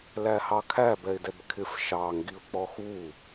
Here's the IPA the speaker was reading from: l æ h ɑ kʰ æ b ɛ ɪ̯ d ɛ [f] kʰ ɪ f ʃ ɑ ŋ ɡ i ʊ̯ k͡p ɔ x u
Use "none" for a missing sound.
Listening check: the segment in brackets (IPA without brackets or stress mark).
b